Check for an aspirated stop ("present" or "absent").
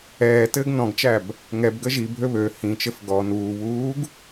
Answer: absent